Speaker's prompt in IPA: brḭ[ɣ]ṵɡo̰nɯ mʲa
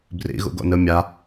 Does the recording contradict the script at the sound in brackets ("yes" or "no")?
no